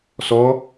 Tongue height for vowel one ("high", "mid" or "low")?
mid